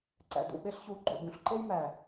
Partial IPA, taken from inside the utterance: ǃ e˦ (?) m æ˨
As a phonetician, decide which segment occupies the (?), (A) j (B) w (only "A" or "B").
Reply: A